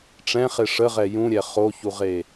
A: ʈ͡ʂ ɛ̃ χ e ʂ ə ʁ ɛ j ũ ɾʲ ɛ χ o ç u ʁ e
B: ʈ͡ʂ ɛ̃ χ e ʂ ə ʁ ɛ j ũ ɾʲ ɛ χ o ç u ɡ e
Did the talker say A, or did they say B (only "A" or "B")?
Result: A